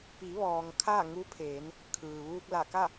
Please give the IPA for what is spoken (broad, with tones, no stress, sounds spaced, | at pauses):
p i˩˧ ʋ ɔː˩ ŋ kʰ a˥˨ ŋ u˧˥ pʰ eː˩˧ n | kʰ ɯː˩ ʋ uː˧ k̚ l a˧˩ k a˥˨